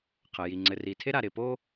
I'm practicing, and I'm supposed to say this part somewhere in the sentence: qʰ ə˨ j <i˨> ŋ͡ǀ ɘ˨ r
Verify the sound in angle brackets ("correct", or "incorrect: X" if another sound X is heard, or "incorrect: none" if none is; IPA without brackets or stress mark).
correct